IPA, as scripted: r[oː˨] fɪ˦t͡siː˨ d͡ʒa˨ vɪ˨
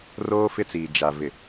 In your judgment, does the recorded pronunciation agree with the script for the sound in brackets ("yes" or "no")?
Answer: no